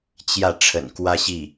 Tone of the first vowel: falling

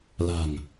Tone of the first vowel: low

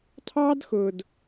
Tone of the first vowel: high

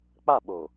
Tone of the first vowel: falling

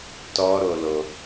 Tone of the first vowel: high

